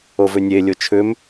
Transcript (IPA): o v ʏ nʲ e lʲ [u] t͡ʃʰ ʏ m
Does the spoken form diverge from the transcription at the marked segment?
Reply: yes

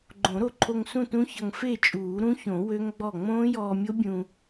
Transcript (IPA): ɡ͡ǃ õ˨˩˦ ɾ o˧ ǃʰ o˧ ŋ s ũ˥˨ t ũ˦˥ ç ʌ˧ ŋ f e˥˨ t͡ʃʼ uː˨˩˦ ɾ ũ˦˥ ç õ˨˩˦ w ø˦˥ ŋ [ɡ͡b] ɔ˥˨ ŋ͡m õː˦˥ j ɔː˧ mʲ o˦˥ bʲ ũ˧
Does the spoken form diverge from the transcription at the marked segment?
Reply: no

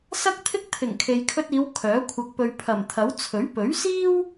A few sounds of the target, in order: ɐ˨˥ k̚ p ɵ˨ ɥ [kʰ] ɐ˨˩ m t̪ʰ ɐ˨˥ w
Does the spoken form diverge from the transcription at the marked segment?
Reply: yes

